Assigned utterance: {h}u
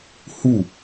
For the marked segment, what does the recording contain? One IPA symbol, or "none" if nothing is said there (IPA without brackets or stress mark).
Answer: h